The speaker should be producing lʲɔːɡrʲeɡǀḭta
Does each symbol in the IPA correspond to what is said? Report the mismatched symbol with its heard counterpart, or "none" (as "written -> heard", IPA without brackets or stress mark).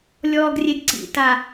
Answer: none